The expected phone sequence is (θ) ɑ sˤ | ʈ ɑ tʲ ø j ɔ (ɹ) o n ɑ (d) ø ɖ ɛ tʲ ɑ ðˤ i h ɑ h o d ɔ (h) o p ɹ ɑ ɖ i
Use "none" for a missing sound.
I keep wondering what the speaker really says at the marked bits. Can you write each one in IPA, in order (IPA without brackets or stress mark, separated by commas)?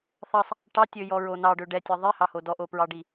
θ, ɹ, ɖ, ʔ